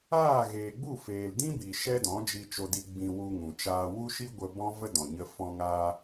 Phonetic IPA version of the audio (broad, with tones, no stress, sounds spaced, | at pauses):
aː˦˨ ɣ eː˨ ɡ͡b u˦˨ f eː˨ l d ĩ˦ b i˨ ʃ ɛ˦ d ɔ̃˨˦ d͡ʒ i˧ t͡ʃ o˧ d i˧ ɡ͡b ĩ˧ w u˧ ŋ ũ˨ t͡ʃ aː˧ w u˦ ʃ i˦ ɡʷ ə˧ b ɔ̃˦ v ə˦ d ɔ̃˨ ɲ ə˧ f ɔ̃˧ ŋ aː˧